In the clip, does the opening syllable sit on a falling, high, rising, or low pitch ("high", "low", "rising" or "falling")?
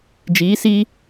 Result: rising